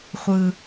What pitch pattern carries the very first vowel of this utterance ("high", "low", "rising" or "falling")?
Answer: low